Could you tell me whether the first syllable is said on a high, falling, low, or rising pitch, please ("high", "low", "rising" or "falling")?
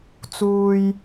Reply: low